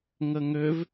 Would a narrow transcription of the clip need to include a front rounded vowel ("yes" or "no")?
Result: yes